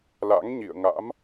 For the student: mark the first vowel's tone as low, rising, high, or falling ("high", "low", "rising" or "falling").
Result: rising